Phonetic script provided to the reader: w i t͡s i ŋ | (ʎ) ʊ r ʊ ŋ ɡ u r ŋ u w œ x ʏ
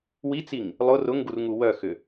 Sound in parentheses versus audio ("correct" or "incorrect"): incorrect